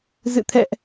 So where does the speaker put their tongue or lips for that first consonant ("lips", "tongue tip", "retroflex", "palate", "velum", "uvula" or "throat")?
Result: tongue tip